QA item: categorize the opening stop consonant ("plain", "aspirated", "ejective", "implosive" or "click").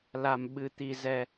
implosive